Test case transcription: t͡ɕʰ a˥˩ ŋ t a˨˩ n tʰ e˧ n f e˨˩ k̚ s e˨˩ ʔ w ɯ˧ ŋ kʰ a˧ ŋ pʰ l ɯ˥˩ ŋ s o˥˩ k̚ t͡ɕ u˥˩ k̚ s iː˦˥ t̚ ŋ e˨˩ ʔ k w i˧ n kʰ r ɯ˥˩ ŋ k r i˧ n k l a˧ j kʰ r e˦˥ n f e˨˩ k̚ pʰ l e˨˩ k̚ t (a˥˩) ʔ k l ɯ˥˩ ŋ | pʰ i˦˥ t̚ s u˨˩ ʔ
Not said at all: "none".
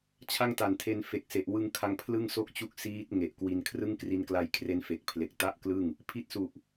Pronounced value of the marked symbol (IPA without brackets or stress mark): a˥˩